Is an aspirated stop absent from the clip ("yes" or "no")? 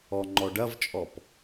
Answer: yes